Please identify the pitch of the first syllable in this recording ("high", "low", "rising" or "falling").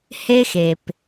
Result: high